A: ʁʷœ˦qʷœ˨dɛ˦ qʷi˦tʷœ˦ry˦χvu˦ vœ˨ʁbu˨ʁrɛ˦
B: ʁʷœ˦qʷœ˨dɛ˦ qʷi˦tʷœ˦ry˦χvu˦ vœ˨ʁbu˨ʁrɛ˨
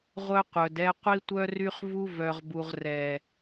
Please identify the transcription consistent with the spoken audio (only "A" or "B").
B